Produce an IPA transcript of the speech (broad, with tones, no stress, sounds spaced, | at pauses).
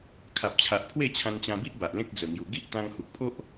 kʰ a˨ p̚ t͡ɕʰ a˨ ʔ pʰ w e˥˧ t͡ɕʰ ã˧ n t͡ɕ ã˧ b i˦ ʔ b a˨ ʔ l ẽ˦ k̚ d͡z ə˨˩ ŋ j u˨˩ ɡ i˦ ʔ t̪ ã˧ ŋ h u˨ k̚ pʰ o˦ ʔ